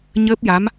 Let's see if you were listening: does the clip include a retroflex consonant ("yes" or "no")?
no